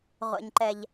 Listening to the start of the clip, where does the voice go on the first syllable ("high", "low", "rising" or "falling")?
low